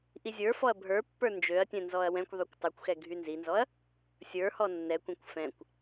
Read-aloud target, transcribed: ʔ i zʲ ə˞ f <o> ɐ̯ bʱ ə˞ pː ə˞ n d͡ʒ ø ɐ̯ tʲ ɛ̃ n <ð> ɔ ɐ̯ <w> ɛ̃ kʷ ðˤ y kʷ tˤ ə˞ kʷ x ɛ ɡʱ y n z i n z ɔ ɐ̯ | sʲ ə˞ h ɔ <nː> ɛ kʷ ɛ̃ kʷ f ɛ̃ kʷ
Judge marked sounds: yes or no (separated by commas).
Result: no, no, yes, yes